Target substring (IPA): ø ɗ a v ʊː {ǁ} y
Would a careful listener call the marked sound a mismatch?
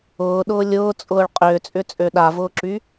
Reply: no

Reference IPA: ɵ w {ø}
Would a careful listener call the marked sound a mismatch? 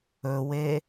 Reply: yes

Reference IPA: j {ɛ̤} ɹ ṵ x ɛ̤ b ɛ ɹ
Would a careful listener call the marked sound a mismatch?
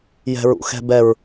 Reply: no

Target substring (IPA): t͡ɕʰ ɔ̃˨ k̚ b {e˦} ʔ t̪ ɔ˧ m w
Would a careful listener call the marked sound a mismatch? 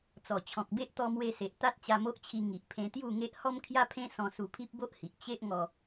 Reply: no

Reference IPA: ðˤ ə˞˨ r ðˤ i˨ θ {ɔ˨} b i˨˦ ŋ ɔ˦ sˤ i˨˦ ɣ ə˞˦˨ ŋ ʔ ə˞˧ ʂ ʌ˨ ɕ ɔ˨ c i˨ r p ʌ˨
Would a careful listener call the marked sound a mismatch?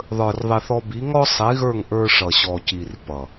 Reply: yes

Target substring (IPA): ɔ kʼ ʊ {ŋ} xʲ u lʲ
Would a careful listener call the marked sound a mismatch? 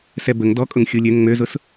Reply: no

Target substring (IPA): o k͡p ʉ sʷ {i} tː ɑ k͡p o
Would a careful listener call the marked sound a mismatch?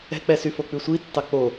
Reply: no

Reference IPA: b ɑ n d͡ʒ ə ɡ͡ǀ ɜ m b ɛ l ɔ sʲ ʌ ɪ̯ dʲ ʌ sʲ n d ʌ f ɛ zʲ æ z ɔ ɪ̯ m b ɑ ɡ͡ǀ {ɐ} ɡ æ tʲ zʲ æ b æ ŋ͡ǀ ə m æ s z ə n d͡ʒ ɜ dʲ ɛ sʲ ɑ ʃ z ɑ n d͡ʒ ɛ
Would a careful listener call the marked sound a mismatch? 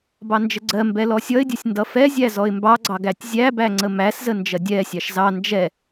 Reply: yes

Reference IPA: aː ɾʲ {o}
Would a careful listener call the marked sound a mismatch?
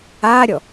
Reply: yes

